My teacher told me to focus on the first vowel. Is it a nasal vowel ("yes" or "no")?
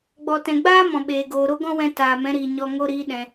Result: no